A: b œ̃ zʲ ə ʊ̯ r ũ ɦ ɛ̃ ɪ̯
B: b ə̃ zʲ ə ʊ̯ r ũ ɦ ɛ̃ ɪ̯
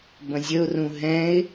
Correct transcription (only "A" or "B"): B